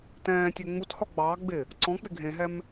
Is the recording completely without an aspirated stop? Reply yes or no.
yes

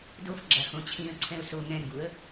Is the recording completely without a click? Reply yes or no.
no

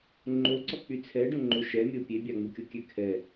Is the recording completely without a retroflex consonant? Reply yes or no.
no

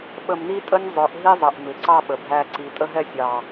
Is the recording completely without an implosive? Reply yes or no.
no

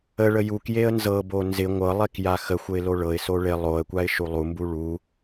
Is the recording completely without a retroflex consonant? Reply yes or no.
no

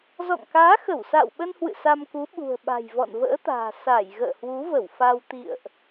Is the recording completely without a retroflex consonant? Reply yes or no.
yes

